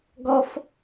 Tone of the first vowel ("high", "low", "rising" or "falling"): high